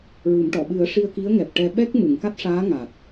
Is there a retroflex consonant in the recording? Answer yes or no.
yes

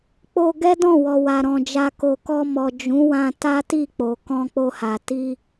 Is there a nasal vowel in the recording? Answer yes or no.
yes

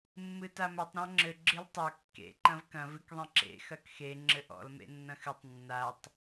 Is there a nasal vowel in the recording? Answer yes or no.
yes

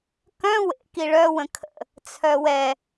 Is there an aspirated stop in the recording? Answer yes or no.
yes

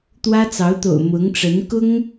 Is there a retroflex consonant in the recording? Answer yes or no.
yes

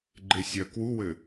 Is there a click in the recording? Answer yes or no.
yes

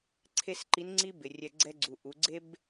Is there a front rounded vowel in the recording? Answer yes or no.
no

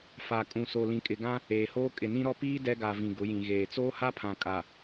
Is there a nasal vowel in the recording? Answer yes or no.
yes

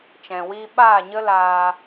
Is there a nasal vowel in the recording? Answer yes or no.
yes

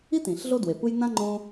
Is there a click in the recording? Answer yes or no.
yes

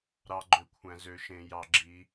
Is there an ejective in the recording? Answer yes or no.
no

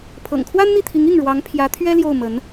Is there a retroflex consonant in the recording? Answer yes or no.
yes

